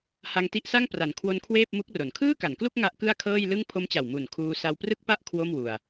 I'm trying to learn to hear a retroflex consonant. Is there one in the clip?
no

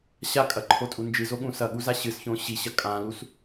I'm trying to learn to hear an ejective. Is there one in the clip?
yes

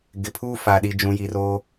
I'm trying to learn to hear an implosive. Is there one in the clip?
yes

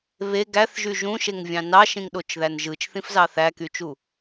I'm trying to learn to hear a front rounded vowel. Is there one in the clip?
yes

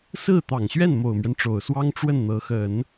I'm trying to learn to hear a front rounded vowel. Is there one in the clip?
no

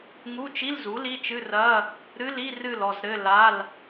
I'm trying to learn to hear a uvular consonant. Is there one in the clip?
no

